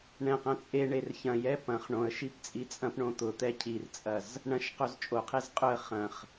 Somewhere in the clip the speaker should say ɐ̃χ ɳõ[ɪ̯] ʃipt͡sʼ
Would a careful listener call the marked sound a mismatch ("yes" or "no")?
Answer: yes